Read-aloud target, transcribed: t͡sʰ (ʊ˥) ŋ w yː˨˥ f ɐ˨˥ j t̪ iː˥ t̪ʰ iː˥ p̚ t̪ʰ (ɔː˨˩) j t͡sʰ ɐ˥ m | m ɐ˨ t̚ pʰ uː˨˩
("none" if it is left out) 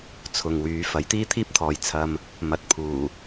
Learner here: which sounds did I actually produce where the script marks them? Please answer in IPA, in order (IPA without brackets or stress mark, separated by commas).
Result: ʊ˨, ɔː˨